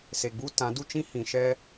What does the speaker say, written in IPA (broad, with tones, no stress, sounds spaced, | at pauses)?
s e˨ ɡ͡b u˦ t ã˨˦ d u˦ t͡ʃ ĩ˦ h ĩ˨ ʃ ɛ˦